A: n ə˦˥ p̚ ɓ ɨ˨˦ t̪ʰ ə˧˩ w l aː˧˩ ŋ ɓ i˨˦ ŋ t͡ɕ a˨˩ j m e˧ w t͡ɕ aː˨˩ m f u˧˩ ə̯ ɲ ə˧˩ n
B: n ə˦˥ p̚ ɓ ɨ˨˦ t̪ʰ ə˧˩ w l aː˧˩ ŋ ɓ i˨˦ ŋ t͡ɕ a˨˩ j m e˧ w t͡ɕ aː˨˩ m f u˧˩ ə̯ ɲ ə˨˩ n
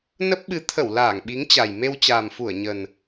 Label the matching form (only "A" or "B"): B